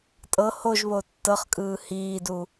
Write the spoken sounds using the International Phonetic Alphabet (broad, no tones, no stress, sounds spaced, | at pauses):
tʼ ɤ h o ʒ β o tː ɤ χ kʼ ɯː h iː d u